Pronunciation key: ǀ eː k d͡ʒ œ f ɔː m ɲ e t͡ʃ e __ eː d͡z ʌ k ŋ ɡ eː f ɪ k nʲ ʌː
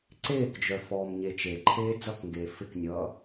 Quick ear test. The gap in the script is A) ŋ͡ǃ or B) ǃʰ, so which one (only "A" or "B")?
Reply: B